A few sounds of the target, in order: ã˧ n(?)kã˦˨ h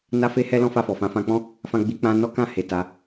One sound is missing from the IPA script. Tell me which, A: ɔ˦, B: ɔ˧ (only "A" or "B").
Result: A